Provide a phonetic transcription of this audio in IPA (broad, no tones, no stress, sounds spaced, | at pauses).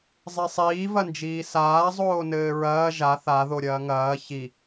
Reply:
zˤ e sˤ iː v ɐ n d͡ʒ iː s aː zˤ oː n ɘː ɹ ɐː ʒ a θ a ð o ɾʲ ɐː ŋ ɐː ç i